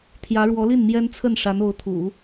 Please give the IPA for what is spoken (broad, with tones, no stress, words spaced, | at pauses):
t̪ʰjä˧˥ɻwɔ˧˥li˥˩n mjɛ˥nt͡sʰə˥˩n ʂa˧˥no˧˥ʊ̯t̪ʰṵ˨˩˦